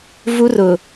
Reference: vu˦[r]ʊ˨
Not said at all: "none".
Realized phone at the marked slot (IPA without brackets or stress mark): r